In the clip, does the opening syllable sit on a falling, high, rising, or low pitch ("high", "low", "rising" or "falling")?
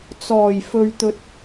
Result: low